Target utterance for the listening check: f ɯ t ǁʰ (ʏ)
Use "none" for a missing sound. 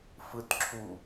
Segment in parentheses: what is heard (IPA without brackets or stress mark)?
u